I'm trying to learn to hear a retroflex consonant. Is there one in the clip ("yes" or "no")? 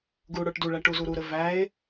yes